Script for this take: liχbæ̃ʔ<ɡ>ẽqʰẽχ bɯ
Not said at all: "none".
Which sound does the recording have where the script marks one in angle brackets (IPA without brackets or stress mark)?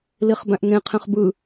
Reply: ŋ